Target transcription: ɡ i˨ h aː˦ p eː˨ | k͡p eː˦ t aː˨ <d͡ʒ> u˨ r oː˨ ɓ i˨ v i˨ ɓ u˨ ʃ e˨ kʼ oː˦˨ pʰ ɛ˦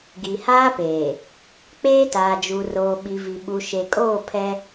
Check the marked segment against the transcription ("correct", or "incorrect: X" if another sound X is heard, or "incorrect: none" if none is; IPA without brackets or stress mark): correct